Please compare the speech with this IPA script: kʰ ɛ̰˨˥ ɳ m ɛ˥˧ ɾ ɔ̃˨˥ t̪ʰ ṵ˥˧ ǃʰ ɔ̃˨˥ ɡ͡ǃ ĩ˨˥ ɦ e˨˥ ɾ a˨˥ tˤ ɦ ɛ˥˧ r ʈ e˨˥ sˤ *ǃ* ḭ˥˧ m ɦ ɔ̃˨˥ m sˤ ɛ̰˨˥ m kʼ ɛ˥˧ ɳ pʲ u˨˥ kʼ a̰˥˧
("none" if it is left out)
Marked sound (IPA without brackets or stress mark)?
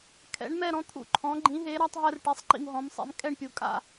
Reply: ǃ